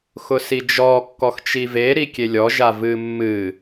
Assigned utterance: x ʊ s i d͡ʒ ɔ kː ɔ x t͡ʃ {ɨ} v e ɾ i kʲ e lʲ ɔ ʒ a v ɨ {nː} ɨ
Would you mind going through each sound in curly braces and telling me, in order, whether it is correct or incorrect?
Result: incorrect, incorrect

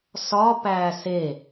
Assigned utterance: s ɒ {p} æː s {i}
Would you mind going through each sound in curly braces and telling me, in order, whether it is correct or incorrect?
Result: correct, incorrect

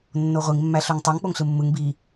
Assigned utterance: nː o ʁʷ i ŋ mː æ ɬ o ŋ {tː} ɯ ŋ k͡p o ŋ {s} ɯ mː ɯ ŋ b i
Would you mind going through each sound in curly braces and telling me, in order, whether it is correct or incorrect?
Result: incorrect, incorrect

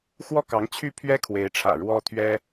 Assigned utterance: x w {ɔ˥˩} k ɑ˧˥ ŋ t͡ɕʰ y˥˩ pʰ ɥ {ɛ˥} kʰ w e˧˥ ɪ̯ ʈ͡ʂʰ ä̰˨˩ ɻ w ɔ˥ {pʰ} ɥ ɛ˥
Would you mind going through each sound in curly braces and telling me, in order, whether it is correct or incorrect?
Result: correct, correct, incorrect

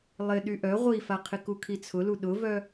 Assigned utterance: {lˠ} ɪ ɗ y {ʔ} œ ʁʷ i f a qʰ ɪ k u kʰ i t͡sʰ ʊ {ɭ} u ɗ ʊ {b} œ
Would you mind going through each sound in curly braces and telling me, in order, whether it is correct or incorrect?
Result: correct, correct, incorrect, incorrect

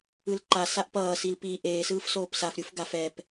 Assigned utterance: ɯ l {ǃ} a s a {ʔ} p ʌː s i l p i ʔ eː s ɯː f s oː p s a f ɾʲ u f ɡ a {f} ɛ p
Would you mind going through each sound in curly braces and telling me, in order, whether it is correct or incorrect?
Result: correct, correct, correct

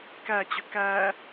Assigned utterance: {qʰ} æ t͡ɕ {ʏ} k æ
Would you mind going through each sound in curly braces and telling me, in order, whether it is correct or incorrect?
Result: incorrect, correct

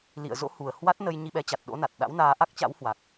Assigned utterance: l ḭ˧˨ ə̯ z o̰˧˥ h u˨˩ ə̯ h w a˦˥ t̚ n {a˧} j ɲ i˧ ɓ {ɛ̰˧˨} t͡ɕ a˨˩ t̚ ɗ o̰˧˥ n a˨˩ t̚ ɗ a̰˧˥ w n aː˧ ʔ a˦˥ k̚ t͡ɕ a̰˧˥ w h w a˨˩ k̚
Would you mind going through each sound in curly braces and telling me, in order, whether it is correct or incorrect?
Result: incorrect, incorrect

